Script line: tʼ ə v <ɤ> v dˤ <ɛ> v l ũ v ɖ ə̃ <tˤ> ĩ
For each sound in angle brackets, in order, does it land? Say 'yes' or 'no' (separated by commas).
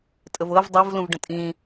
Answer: yes, yes, no